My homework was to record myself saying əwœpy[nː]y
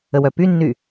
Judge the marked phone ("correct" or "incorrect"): correct